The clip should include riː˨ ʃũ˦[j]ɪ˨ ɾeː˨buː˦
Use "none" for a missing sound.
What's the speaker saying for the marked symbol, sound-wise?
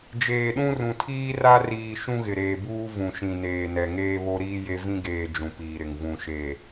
ɣ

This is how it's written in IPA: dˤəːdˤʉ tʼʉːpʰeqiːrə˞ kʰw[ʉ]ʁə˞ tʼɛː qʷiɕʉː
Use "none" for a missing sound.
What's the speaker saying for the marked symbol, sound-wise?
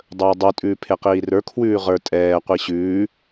ʉː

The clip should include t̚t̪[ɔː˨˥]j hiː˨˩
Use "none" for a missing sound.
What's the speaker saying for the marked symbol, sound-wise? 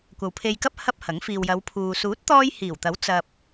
ɔː˧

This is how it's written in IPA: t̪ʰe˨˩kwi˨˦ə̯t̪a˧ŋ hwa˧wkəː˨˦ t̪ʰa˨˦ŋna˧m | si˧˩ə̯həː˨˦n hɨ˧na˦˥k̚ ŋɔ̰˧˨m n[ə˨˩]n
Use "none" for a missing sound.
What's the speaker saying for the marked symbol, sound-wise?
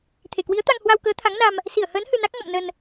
ə˧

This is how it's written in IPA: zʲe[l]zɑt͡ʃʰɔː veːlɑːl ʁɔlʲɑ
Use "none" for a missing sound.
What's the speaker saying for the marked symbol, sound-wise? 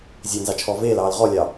n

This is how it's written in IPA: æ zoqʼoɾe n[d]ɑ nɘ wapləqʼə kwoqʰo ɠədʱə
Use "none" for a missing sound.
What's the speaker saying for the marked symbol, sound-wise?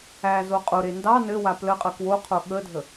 d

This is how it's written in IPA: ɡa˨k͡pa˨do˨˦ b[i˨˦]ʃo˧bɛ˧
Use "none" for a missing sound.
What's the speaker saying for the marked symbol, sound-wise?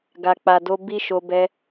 i˦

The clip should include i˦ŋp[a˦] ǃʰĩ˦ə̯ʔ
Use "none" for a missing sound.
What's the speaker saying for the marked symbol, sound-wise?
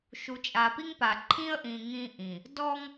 a˨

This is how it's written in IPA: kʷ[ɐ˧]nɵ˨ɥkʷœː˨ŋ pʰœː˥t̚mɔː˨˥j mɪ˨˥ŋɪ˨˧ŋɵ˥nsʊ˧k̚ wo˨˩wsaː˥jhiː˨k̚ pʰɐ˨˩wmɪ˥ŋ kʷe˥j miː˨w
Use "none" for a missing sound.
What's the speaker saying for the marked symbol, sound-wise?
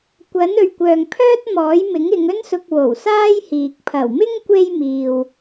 ɐ˨˥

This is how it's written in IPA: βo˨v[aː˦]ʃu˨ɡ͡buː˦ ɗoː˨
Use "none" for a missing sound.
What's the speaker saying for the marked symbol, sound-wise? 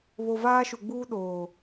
aː˦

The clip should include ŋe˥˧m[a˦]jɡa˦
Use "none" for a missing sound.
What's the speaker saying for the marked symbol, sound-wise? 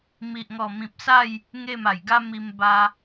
a˨˩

